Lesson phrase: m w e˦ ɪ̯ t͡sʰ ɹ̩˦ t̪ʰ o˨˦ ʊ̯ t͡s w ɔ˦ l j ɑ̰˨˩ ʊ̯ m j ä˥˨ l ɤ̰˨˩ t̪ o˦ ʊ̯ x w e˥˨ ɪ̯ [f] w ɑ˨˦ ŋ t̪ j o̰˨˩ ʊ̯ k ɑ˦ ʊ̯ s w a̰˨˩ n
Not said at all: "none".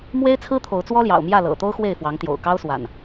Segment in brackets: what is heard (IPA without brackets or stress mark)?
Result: f